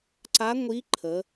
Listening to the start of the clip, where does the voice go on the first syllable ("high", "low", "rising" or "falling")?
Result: rising